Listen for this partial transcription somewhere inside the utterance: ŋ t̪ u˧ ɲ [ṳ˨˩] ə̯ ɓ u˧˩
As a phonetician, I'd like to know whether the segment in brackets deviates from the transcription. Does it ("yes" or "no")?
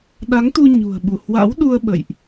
no